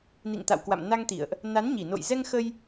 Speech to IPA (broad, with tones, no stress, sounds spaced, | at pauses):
n ḭ˧˨ ŋ t̪ a̰˧˨ w k w a̰˧˨ m n a˧ ŋ t̪ ḭ˧˨ ə̯ ʔ | n a˨˦ n ɲ i˧˩ n o̰˧˨ j z ɛ˧ ŋ x ə˧ j